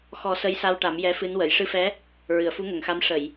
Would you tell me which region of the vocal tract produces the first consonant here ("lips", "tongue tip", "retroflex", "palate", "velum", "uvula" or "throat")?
velum